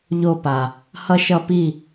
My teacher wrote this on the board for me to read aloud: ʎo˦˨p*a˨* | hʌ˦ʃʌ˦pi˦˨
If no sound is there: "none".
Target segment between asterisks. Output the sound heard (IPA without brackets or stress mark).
a˨